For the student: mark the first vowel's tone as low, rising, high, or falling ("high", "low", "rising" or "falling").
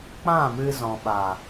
falling